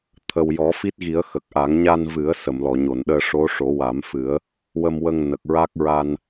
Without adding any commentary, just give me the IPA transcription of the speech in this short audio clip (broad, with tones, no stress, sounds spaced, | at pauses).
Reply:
t̪ʰ ə˨˩ w j ɔ˨˩˦ f i˦˥ t̚ ɣ i˨˩˦ ə̯ x ə˨˩ k̚ ʔ a˨˩˦ ŋ ɲ a˧ n v ɨ˨˩˦ ə̯ s ə˨˩˨ m l ɔ˨˩˨ ɲ o˨˩˨ n ɗ əː˧ ʂ o˧˥ ʂ o˨˩˦ w a˨˩˦ m f ɨ˨˩˦ ə̯ | w ə˧ m w ə˧ ŋ n ə˨˩ k̚ ɹ a˦˥ k̚ ɹ a˧ n